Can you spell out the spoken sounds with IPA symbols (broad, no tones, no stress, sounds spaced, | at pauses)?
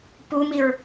p u m i ɹ